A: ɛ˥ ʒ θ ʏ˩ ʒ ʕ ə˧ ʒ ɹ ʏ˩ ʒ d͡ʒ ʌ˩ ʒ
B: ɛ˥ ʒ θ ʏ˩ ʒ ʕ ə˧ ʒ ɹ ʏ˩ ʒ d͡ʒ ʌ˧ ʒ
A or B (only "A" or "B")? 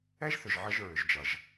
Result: A